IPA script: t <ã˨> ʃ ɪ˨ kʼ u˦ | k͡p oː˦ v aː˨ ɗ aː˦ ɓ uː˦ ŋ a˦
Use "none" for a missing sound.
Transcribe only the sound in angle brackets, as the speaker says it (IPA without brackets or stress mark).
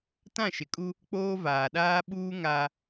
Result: ã˦˨